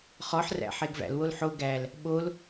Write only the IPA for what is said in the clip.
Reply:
χɔħræ̰ ħeɡvæ̰lwol ħo ɡæl | ɓol

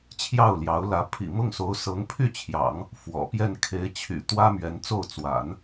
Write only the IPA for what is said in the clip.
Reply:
t͡ɕʰjɑ˥˩ʊ̯ljɑ˧˥ʊ̯lä˧˥ pʰḭ˨˩mʊ˥˩ŋso˧˥ʊ̯ sɤ˧˥ŋpʰy˥˩t͡ɕʰjɑ̰˨˩˦ŋ | fwɔ̰˨˩pjɛ˥˩n kʰe˧˥ɪ̯t͡ɕʰy̰˨˩ t̪wä˥mɥɛ˧˥nt͡so˥˩ʊ̯ t͡swa̰˨˩˦n

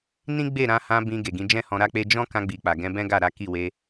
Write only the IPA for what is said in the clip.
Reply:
nĩ˦ɡ͡be˦˨ɾã˧hã˧ bĩ˧ ɡe˨ɡĩ˨˦d͡ʒɛ̃˦ hɔ̃˧ɾa˦k͡pe˦ d͡ʒɔ̃˦kã˧ɡ͡bi˨ k͡pa˨ɡɛ̃˧bɛ̃˦ɡa˦˨ ɾa˨˦ki˦˨we˧

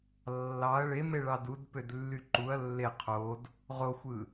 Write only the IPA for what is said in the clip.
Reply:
lːɑɐ̯ ɭemeɭɑ dudpødlːy ǃuɐ̯ lːe qʰod | ʁoxʷɯ

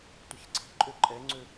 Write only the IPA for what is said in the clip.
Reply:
tʷiçǀʰi̤ǃʼø ǃʼɛŋ͡ǀø

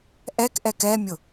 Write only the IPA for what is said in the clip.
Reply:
ʔɛkʔɛk ɛmʲʊ

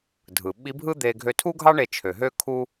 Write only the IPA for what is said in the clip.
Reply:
dʱɯ˩ ɓi˧˥bʱɯ˥d̪e˧ ɡʱø˧tʰu˥ɡʱɑ˥ ɳe˧ t͡ʃʰø˩ɦø˥ kʰu˥

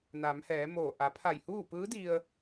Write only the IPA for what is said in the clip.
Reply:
naː˩˧mhɛː˩˧moː˧˩ ʔa˩˧pʰa˧˩jhuː˥˨ pɯː˧˥di˧ə̯

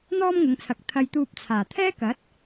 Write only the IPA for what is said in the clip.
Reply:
n̪ɔː˥mŋʊ˨˧ŋt͡sʰɐ˨k̚ t̪ʰɐ˧jt̪uː˧p̚t͡sʰaː˨˩ t̪ʰɛː˥kɐ˨˥t̚

